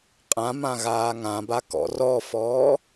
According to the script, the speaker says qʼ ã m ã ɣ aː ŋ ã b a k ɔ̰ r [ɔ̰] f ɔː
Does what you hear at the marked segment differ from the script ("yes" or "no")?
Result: yes